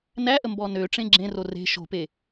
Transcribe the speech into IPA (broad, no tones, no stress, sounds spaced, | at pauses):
n æ ʔ ə m b ɔ n ø ʈ͡ʂ ẽ ɡ͡ǁ ẽ r o r e̤ ʃ o̤ p e